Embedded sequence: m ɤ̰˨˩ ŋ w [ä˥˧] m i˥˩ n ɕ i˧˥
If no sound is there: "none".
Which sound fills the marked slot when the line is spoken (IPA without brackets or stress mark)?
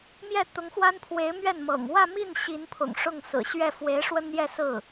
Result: ä˥˧